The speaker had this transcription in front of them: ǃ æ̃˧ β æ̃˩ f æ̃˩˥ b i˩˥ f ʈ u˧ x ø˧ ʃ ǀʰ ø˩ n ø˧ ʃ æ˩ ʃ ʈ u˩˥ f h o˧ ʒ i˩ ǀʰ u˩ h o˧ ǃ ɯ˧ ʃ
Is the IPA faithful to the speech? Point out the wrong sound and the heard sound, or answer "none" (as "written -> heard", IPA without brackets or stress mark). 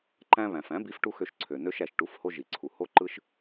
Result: none